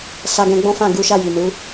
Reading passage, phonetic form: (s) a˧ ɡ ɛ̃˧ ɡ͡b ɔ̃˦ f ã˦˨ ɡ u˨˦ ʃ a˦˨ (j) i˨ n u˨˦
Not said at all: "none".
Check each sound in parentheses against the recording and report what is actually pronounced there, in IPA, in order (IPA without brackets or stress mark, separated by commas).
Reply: s, j